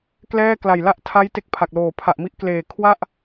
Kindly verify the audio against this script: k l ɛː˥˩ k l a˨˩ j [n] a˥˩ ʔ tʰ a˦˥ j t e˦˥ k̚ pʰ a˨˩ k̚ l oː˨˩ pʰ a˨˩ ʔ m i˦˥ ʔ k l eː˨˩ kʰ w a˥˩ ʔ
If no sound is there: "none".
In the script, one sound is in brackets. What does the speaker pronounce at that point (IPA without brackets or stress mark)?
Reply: l